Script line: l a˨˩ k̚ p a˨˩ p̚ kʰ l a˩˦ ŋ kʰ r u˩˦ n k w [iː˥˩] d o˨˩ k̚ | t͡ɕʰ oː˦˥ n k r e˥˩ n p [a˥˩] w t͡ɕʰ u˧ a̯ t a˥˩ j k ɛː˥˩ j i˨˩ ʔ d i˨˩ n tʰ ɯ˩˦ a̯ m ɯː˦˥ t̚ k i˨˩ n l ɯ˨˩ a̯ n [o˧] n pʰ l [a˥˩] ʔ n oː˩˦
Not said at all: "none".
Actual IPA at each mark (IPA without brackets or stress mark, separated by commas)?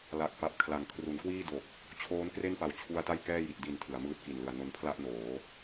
iː˥˩, a˨˩, o˧, a˥˩